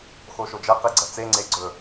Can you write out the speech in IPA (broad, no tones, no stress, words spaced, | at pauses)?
xoʃod͡ʒɐ qiɡ͡ǀɐt͡se ŋ͡ǀeɡ͡ǀɵ